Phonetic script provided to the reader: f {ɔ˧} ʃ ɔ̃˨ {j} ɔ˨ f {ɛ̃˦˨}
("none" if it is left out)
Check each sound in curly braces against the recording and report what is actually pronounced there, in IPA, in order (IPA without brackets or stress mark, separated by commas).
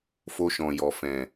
o˧, j, ɛ̃˨